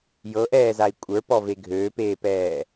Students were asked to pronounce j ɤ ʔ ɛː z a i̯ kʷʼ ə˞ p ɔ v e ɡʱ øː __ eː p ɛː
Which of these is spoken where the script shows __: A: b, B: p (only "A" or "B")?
B